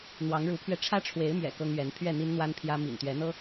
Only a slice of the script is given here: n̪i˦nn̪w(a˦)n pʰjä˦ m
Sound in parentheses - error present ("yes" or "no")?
no